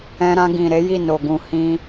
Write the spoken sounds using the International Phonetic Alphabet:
ɛ̃˧ɾã˧ɡĩ˨ ɾe˨˦ji˦˨ no˨ɡũ˧ hĩ˧

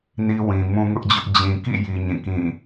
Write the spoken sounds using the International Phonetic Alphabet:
ni˦wĩ˨ mũ˦ŋʊ˦ʔd͡ʑʊ˦ʔ d͡ʑĩ˨kḭ˦˨ji˨ ɲĩ˦˨kĩ˦˨

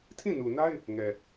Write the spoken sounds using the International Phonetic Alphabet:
tʰĩ˦˨nu˨na˦ɪ̯ | ŋɛ˨

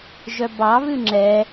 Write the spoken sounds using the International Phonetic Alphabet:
ʒœbɑ βʉŋ͡ǁɛ

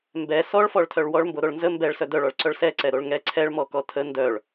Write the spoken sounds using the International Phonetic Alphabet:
mbɛ sɔɭfɔɭtʰœɭ wɔɭmboɾoɭ nzə mbɛɭsœ dœɭɔɭǀœɭ sɛǀɛɾoɭ ŋɛ ǀʰɛɭmɔkɔ tʰə ndœɭ

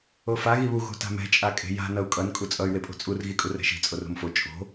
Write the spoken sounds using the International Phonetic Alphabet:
ofa ɣiβu ɣo̤ta̤mɛ̤ t͡ʃʼakʼe̤ja̤ nʌu̯kʼʌn kʼut͡sʼʌy̯ wepʼo̤t͡sʼur ɣikʼurɛ̤ʃi̤ t͡sʼoro̤mfo t͡ʃʼo̤

